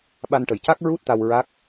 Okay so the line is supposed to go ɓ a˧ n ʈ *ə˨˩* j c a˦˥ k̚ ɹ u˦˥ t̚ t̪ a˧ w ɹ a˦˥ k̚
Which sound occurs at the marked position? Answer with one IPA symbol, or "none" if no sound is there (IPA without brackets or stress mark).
ə˨˩